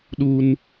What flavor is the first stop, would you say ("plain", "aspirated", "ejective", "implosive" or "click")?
implosive